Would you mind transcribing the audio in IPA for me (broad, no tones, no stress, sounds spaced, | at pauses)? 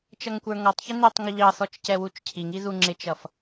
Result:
t͡ʃ ʌ ŋ kʷ ə˞ ŋ ɔ tˤ ç ɪ n ɪ tˤ ŋ ʊ ʎ ɑ θ ɔ t͡ʃ c ɛ w u t͡ʃ cʰ i ŋ i ð u ŋ͡ǁ ɪ t͡ʃ ʌ f